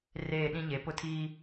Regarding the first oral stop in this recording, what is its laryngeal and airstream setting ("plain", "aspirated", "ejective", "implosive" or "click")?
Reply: implosive